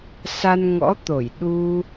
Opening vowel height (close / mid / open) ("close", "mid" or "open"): open